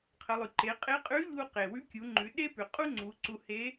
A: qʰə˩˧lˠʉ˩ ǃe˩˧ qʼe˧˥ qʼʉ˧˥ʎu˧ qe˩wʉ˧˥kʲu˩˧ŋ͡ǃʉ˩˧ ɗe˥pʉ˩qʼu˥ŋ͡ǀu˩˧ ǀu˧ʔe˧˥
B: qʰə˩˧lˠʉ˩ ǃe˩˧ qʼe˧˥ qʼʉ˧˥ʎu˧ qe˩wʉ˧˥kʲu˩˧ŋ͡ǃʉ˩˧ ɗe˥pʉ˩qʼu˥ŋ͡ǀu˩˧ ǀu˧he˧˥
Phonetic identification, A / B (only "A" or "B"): B